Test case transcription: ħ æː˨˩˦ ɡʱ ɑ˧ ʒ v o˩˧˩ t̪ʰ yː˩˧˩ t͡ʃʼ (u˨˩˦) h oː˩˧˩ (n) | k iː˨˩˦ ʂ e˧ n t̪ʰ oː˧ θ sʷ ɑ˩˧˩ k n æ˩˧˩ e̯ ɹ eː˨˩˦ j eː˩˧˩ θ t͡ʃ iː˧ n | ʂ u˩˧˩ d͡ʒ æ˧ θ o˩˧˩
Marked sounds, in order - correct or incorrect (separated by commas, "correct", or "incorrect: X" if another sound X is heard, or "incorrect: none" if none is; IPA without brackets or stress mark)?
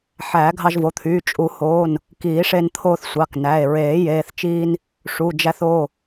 correct, correct